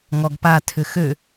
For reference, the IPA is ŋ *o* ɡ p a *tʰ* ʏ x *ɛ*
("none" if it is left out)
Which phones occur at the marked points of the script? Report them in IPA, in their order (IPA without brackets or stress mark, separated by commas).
ɔ, tʰ, ø